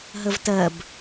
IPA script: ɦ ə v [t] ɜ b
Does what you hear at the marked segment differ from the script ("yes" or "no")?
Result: no